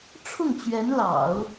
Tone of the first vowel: falling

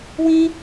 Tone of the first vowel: high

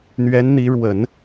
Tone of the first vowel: rising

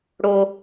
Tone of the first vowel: high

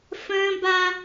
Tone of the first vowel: high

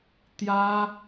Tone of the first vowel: high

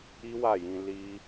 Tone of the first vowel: high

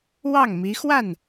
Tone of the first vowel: falling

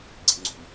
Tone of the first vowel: low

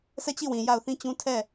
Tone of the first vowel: falling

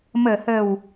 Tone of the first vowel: low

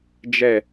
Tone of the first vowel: falling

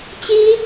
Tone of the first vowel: high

